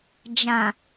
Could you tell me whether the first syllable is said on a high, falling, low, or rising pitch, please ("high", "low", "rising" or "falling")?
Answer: low